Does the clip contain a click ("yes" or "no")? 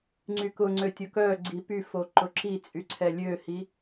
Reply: yes